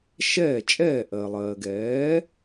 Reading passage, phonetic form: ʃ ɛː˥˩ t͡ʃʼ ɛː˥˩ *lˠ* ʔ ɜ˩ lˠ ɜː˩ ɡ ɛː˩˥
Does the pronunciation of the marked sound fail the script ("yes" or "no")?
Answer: yes